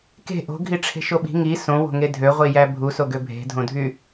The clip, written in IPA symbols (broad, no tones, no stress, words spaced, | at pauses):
ke̤ ʔo̤ɡʱiʈ͡ʂʰe̤ʃo ɓi̤ ŋi sõwo̤ŋe dʱøʁʷijæ bʱusoɡø bʱe̤dʱõdʱy